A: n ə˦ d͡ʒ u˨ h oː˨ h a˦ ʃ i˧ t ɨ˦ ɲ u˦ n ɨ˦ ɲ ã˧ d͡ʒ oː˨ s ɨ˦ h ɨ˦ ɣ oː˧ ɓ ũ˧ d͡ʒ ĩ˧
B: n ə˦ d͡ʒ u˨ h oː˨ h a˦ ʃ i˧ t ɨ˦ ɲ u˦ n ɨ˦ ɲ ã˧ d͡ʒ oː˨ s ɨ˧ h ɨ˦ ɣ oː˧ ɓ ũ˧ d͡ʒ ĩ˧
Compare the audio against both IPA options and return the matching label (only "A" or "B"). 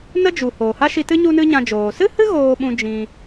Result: A